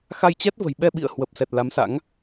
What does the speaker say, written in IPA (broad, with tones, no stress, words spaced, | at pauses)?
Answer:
xa˧jt͡ɕɛ˦˥t̚və̤˨˩j ɓɛ˧ɓḭ˧˨ə̯ hwə˨˩p̚sɛ˨˩t̚ la˨˦msa̰˧˥ŋ